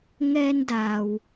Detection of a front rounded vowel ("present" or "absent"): absent